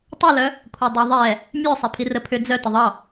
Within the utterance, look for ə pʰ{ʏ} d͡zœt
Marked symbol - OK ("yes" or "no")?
yes